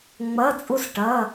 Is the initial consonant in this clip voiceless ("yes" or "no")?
no